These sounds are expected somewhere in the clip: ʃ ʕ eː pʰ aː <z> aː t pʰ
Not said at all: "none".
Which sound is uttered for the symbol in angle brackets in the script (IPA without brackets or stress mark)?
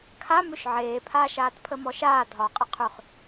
ʃ